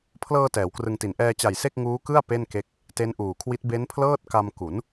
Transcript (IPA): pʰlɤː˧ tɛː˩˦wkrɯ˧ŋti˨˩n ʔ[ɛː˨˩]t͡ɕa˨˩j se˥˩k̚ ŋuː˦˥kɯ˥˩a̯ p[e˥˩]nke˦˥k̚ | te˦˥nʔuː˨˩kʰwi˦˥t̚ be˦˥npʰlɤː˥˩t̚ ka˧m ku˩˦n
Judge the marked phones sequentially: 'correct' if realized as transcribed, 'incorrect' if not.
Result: incorrect: ɛː˧, correct

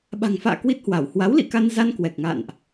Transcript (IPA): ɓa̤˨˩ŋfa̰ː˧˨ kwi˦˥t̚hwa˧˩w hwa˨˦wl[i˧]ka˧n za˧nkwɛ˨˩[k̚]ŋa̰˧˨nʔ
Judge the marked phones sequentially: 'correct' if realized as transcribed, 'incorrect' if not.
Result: incorrect: ḭ˧˨, correct

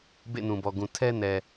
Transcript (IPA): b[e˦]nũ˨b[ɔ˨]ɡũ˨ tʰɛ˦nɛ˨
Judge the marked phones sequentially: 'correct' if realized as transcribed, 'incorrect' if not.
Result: incorrect: ḛ˦˨, correct

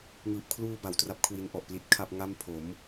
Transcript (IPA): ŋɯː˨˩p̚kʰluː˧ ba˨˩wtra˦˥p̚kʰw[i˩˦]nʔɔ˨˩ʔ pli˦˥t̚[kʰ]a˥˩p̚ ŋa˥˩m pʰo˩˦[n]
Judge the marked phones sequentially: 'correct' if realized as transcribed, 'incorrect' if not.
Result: incorrect: i˧, correct, incorrect: m

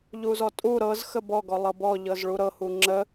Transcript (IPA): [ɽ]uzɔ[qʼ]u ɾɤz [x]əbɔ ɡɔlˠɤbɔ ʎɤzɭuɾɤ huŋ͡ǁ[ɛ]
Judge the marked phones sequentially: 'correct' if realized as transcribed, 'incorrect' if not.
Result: incorrect: ʎ, incorrect: tʼ, correct, incorrect: ə

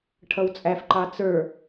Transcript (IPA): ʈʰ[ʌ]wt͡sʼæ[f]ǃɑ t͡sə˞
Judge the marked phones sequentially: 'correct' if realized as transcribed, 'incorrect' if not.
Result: correct, correct

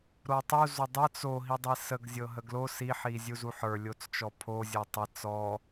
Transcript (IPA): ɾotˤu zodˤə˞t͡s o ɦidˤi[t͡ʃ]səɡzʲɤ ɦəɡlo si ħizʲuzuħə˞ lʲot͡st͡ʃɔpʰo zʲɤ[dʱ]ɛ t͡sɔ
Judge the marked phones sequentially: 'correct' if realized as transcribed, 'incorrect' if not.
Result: incorrect: none, incorrect: tˤ

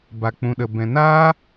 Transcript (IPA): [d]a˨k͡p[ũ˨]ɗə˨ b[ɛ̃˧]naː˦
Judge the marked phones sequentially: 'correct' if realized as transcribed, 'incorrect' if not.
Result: incorrect: b, correct, incorrect: ɛ̃˨

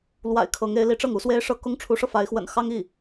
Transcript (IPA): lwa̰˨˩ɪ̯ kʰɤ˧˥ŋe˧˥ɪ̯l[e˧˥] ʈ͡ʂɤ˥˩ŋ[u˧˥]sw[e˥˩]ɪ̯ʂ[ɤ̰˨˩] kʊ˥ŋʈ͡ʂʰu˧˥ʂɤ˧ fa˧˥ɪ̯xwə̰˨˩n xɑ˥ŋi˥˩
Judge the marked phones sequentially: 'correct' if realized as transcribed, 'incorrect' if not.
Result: incorrect: i˧˥, correct, incorrect: e˥, incorrect: ɤ˥

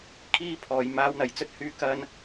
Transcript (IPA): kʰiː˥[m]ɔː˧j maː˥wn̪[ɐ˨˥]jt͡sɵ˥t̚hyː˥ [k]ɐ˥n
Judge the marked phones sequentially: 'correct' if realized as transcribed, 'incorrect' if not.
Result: incorrect: pʰ, incorrect: ɐ˧, correct

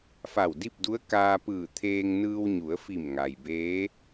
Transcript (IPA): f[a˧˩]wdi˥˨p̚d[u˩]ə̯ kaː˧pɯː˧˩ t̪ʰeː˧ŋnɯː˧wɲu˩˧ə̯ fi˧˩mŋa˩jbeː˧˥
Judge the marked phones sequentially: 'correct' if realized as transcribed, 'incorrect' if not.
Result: correct, incorrect: u˧˥

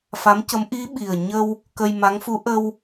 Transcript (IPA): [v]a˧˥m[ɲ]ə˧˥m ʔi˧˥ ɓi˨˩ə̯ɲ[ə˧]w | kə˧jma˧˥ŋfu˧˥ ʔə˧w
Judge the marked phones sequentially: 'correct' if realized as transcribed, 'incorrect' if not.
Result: incorrect: f, incorrect: c, correct

